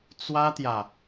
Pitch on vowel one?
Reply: high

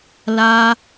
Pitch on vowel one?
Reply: high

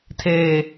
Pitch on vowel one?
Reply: low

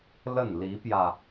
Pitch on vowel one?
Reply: falling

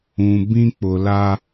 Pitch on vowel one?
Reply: low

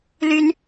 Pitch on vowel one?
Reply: rising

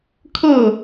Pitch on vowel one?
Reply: falling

